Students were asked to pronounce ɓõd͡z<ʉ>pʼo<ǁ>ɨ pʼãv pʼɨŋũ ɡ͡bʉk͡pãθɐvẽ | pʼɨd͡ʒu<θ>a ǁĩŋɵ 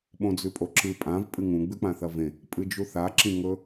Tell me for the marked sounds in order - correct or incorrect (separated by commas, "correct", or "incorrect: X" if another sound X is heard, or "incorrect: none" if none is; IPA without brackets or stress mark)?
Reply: correct, correct, correct